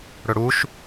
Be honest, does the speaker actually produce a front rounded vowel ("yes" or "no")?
no